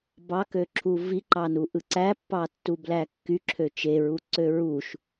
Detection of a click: present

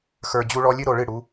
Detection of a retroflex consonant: present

